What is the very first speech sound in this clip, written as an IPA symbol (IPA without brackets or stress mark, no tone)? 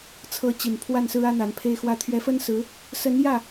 t͡sʰ